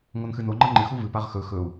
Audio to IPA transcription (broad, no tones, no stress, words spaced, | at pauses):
ŋonxɨno ŋ͡ǃɐŋ͡ǃɨxu vɨpaʁ xɵ xɵu̯